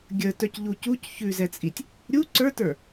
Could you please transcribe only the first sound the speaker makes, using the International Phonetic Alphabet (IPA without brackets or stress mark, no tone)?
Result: ɡʲ